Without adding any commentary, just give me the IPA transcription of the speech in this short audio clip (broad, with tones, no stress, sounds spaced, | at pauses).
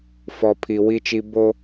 f ɔ˨ pʰ i˨ w i˦ t͡ʃ i˦ b o˦